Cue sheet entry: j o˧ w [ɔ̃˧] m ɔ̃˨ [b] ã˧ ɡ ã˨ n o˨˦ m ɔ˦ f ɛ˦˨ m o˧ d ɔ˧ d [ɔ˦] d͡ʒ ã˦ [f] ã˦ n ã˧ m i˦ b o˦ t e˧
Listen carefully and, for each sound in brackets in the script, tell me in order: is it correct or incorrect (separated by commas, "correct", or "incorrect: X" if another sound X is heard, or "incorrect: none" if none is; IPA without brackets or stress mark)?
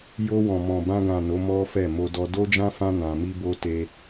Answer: incorrect: ɔ̃˨, correct, incorrect: o˦, correct